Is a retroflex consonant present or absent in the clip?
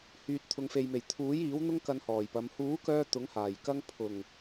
absent